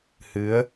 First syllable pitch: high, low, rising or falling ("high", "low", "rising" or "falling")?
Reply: rising